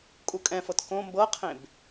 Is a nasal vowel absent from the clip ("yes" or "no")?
no